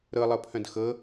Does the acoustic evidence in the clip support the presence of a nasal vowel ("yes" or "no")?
yes